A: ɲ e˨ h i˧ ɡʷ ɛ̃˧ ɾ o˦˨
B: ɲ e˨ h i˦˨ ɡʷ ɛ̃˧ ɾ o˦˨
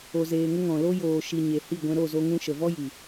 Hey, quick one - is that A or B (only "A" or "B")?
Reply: B